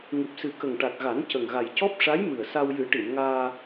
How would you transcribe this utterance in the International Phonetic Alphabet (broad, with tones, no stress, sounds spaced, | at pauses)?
ŋ ɨ˨˩ p̚ s ɨ˨˩ k ə˨˩ ŋ ʈ a˨˩ t̚ ɣ a˨˩˦ n c ə˨˩ ŋ ɣ a˨˩ j c ɔ˦˥ p̚ ʂ a˧˥ j m ɨ˨˩ ə̯ s a˧ w j ɨ˨˩˦ ʈ i˨˩˨ m ŋ aː˧